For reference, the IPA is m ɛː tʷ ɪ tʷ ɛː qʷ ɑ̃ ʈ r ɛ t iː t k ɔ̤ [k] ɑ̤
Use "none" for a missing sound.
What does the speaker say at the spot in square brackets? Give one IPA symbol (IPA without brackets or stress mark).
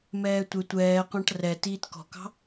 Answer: k